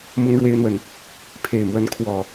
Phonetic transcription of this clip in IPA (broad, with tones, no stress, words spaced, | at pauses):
mʊ˦ŋɻwe˦ɪ̯n̪wə˨n | pʰe˨˩ɪ̯mwə˨˦nkʰwɔ˨˩